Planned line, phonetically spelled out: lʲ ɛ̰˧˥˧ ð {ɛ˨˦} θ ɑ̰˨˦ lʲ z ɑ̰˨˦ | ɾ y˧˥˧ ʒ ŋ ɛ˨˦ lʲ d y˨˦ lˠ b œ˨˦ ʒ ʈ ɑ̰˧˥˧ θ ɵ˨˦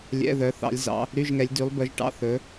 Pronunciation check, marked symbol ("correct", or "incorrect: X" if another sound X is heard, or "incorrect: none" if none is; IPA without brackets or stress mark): incorrect: œ˨˦